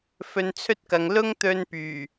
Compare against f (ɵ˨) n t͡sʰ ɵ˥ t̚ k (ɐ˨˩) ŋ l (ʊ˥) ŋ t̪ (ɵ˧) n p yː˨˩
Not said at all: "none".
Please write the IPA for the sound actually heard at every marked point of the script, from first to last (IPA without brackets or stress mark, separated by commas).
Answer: ɵ˧, ɐ˨, ʊ˥, ɵ˧